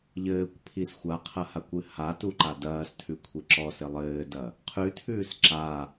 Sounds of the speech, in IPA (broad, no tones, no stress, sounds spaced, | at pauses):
ʎ ɘː kʷ pʰ i s xʷ a qʰ ɐ h a kʷ ɨ h a t u ǃ a d ɐː s tʰ ʉ kʷʰ i ǁ ɔ s ɘ lˠ ɘː d ɐ | qʰ ʉ tʰ ʉː s ǁ a